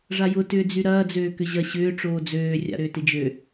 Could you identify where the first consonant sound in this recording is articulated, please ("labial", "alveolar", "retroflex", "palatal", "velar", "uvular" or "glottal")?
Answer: retroflex